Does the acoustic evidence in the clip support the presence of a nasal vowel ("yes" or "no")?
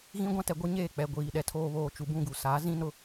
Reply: yes